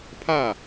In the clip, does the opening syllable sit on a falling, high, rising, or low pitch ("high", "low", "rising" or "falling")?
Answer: falling